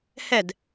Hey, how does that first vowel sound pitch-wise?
falling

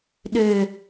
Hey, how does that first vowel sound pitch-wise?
low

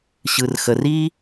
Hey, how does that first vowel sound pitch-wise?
low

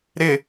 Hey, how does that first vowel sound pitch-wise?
low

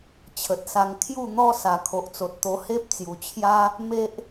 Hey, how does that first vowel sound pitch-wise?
low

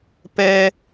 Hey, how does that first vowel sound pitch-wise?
low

